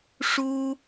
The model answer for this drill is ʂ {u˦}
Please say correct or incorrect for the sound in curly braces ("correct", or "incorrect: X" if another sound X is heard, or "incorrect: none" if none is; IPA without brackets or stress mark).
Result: correct